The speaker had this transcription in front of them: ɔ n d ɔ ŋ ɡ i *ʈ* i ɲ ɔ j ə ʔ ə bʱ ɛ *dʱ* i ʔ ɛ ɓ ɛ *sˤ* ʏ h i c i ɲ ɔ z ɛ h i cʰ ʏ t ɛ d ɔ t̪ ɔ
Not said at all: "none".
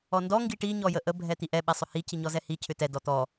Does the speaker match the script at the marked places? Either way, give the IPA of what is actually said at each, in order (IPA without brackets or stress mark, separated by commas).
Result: ʈ, t̪, sˤ